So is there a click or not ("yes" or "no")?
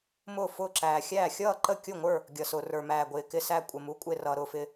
yes